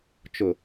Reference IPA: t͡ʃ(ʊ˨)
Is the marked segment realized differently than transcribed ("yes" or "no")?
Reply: no